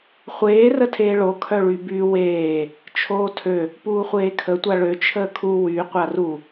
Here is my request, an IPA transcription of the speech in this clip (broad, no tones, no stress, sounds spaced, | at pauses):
χʷ eː r ə tʰ eː ɭ o kʰ œ ɭ y b y w eː | t͡ʃʰ oː tʰ ø | p uː χʷ eː kʰ ə tʷ a ɭ ø t͡ʃʰ əː kʰ u w y qʷ a r u